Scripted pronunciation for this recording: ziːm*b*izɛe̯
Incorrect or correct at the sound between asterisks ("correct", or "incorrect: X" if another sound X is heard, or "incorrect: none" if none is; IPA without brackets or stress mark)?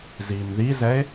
incorrect: ð